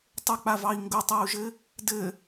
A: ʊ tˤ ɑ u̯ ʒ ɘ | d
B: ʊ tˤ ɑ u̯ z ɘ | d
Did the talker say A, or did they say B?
A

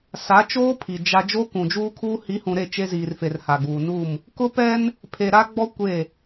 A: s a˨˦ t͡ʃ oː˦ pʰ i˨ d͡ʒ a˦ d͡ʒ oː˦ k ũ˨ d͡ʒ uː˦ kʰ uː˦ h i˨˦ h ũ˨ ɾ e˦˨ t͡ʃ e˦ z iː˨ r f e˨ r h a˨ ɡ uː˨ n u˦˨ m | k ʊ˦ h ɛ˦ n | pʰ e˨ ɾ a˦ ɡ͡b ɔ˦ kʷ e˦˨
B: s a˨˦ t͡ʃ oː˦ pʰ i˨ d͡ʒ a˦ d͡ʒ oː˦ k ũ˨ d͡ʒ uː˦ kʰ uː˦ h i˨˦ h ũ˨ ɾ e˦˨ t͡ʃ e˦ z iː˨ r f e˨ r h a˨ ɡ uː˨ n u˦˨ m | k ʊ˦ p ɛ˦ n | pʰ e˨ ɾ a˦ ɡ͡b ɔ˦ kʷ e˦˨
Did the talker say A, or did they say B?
B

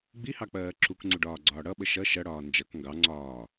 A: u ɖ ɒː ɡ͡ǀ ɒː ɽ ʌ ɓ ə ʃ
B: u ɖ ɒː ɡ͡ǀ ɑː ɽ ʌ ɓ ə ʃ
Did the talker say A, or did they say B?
A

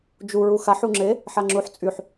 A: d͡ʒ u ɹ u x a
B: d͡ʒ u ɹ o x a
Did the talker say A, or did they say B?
A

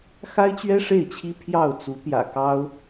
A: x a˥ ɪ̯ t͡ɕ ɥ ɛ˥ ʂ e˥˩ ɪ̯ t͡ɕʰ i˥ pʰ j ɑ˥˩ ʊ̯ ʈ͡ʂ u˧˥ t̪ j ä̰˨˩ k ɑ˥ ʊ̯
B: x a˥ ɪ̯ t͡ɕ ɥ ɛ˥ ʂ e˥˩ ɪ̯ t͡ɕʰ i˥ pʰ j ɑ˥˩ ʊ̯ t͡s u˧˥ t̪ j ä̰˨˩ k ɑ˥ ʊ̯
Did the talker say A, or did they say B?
B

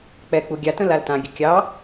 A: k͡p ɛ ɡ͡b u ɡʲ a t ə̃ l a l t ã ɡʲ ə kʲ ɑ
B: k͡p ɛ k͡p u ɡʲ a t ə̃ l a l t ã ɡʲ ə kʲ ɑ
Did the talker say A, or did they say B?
B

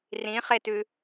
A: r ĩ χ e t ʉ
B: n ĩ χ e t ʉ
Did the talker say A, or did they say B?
A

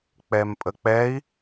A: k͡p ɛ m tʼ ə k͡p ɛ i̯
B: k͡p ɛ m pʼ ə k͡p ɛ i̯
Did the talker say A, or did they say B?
B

